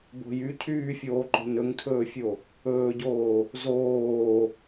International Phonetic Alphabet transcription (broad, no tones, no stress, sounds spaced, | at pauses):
b o̤ j y cʰ yː fʲ oː ǃ o̤ n ɵ ŋ tʰ ɵː fʲ o | ɵː ɟ oː | z oː